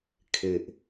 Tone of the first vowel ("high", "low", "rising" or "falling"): low